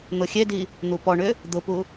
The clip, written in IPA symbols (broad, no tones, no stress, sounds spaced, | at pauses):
n̪ ʊ xʲ e d i | n̪ u p ɔ ɳ ʏ | d̪ ʊ p u